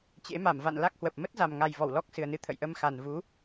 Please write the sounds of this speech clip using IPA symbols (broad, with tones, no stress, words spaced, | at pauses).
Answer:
t͡ɕḛ˧˥ma˧˩mva̰˧˨n la˦˥k̚hwə˨˩p̚ mə˦˥t̚za˨˩mŋa˨˩j vɔ˧˩wlɔ˦˥k̚sɨ˨˩ə̯nɨ˧ t̪ʰə̰˧˨jʔə˧mxa˨˩nvu˨˦